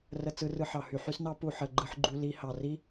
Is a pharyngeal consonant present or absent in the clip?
present